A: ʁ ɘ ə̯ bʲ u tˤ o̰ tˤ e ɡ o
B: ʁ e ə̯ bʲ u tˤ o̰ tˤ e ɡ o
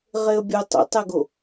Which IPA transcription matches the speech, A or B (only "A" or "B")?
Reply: B